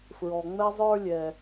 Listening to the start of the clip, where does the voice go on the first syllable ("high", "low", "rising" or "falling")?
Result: low